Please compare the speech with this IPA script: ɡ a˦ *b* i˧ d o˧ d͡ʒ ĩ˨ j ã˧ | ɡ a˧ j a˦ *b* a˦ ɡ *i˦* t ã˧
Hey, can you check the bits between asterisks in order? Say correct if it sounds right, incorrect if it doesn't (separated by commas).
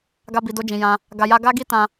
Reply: correct, incorrect, correct